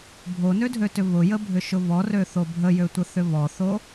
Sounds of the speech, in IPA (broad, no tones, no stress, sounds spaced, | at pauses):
bʱ o n ø dʱ ø t ʏ β ʊ j ə bʱ ʏ ʃ ʊ β ɔ r ø θ o bʱ ə j ø tʷ ə θ ʏ β ɔ θ o